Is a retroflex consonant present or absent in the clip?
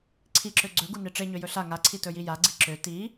present